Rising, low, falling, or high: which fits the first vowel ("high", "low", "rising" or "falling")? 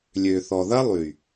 low